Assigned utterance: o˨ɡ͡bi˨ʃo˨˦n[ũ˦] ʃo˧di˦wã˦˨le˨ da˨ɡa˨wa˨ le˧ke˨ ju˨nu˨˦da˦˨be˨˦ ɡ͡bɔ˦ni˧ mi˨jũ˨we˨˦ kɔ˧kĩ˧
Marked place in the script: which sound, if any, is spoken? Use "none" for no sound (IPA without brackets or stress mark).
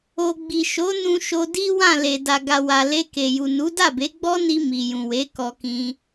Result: ũ˧